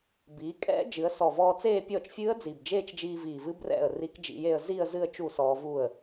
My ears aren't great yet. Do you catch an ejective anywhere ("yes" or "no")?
yes